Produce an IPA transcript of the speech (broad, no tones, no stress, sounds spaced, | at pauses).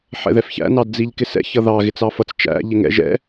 ħ ɛ̰ ð ɛ f ç æ̰ n ɑ d d͡z i ʎ k ɪ s ɛ̰ ç ʌ ð ɑ ɣ ɪ t͡s ɑ f ʌ t͡s t͡ʃ æ̰ ʎ ɪ ŋ ɛ̰ ʒ ɛ̰